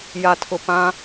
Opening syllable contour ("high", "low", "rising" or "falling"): low